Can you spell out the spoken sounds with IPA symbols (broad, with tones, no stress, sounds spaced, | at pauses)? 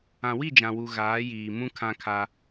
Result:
ã˨ w i˦˨ d͡ʒ ã˨ w u˨ ɣ aː˨˦ j iː˨ m ũ˦ kʰ ã˦ kʰ a˦